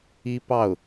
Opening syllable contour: high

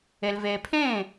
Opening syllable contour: low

